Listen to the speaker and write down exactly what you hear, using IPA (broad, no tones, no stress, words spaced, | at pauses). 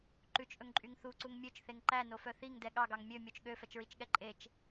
ǃʉt͡ʃʔɵŋǃʼyŋ θuǀuŋ mʲøt͡ʃθeŋ ǃænofœ θiŋdɛ ɠɑɡɑŋ mʲømʲot͡ʃ ɠøfɛt͡ʃɹit͡ʃɠɛ ǃʼet͡ʃ